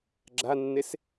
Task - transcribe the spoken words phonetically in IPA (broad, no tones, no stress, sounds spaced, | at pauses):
ɡ͡ǁ a nː e s